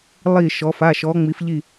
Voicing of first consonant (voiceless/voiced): voiced